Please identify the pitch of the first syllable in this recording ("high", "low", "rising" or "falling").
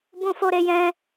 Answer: high